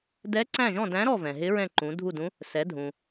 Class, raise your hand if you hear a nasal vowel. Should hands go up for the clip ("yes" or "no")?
yes